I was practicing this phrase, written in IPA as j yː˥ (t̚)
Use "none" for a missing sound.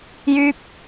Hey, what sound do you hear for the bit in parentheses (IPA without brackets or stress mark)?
p̚